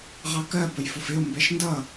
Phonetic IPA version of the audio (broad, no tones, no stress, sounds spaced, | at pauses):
ʁ ɑ k ɜ b ə j f ʊ f ɪ o̯ m b ɛ ʃ n d ʌ